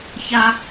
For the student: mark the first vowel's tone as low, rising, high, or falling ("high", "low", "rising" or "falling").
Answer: high